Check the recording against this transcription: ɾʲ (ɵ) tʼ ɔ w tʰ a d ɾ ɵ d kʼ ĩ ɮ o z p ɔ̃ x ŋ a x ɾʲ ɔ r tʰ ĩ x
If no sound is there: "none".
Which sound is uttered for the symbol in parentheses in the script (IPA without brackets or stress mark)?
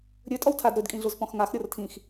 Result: ɵ